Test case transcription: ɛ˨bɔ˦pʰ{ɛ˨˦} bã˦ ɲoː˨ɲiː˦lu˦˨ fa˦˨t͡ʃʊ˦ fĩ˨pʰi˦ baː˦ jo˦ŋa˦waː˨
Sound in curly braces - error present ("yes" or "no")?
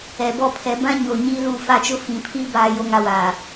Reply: no